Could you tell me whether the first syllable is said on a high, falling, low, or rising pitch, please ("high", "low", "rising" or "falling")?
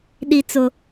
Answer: high